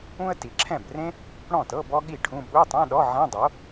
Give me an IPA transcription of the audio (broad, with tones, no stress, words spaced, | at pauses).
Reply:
ũ˥ə̯ ti˩˧ǁʰɛ̃˥˩brẽ˥ | ɽɔ̃˥˩tɤ˧˥˧ bɔ˥ɠi˥˩ʈʰũ˧˥˧ ɓu˧˥˧tˤɛ̃˧˥˧ ɗɔ˧˥˧ ʕɛ̃˧˥˧dˤo˩˥